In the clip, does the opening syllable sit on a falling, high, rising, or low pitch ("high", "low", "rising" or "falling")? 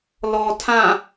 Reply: low